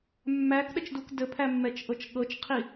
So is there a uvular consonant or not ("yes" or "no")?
yes